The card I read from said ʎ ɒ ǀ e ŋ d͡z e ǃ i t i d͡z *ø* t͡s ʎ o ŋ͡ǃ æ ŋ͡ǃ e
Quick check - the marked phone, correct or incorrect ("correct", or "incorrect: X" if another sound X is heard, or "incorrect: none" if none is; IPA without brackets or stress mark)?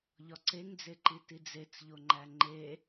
incorrect: e